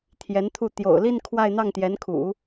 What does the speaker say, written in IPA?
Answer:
t̪ʰjɛ˧˥nt̪ʰu˥˩ t̪jo̰˨˩ʊ̯li˥˧n kʰwa˥˧ɪ̯n̪ɑ˥˩ŋ t̪jɛ˧˥nkʰṵ˨˩˦

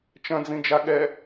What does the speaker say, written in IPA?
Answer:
t͡ʃɐ̃d͡zĩd͡ʒa ɠɛ

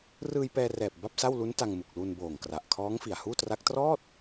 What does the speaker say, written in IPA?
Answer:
rɯː˧jpɛː˧rɛː˨˩p̚ ba˥˩p̚sa˥˩w lu˦˥n ta˧ŋ mu˨˩k̚lu˧nboː˨˩ŋkra˨˩ʔ kʰɔː˦˥ŋfi˨˩a̯huː˥˩tra˦˥k̚ trɔː˥˩t̚

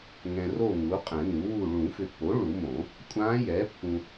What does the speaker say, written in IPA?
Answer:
ŋɛ̃˨ro˦˨ ŋu˩˥ qʼɛ̃˨˩˦nu˩˥wu˦˨ ɭũ˨˩˦fʏ˨pːo˩˥ ɭu˨˩˦mõ˨˩˦ | kʷʼã˧˥jɛ˩˥ pːũ˨

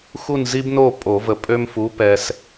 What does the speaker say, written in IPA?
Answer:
xu˦˨nzi˦bno˦˨ pʼo˨˩˦və˨˩˦ pʼø˦mfu˩˥pɛ˨s

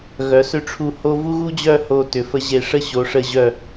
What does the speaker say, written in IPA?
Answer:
ɣœ˩˧sʏ˧ʈ͡ʂʰu˧˩ ho˧ vu˥ɣu˥d͡ʑœ˥˧ ho˧ tʏ˩˧fə˧ ʑe˧˩ʂə˥˧ ɕo˩˧ʂə˧˩ʑœ˧˩

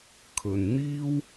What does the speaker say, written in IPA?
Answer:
kʰɵ˨nn̪iː˥w

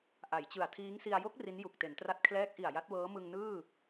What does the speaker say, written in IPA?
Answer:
ʔa˩˦jt͡ɕɯ˨˩a̯ tʰiː˦˥ŋsi˧a̯ jo˦˥k̚ ri˦˥nju˨˩k̚te˩˦ntra˦˥t̚ kʰlɛː˦˥k̚ʔi˨˩a̯ ja˦˥t̚wɤː˦˥ mɯ˧ŋnɯː˥˩

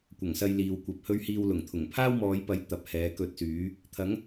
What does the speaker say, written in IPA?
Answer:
kʷɐ˨˩ŋsɐ˧j liː˨wkʷɐ˨p̚hɵ˥ɥ hiː˧wlʊ˨˩ŋ t̪ʰʊ˨˩ŋpʰaː˥wmɔː˨˧jpɐ˨˥j t̪ɐ˨˥p̚hɛː˨˥kɵ˧t̚syː˨˥ | t̪ʰɐ˨˥ŋ

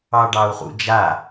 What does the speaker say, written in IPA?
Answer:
ɑɖɑu̯χṵd͡ʒa

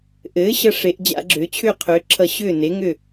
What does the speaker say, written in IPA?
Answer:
ʔɘː˩˥ ɕʌ˧ʂe˩˧ʔ d͡ʑa̰˧˩˧ɡ͡ǁʏː˩˧ t͡ɕʰʏː˥˩qʰʏː˩˧ǁʰʌ˧˩˧ ɕʏː˥˩ ne˩˥ŋʏ˥˩

